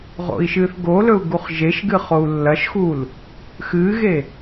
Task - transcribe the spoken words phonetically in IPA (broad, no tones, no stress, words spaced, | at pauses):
ʁo̰i̯ʃɨːθɡolɵu̯ ɡuχʒeʃɡɨ χou̯lːɐʃxul | xɨːɣe